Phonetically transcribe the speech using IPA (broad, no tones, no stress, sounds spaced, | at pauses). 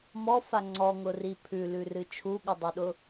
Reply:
m ɔ f a ŋ͡ǀ ɔ ŋ ʊ r i pʰ ʉ l ʉ r ɨ t͡ʃʰ u ɠ ɨ dˤ u ɗ ʊ